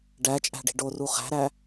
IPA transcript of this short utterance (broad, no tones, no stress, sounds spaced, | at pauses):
ɖ æ t͡ʃʼ æ̤ ɖ i̤ ɖ o r u χ æ̤ ɾ æ